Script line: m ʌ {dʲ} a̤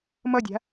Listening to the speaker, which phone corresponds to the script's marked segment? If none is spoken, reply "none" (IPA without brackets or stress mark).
dʲ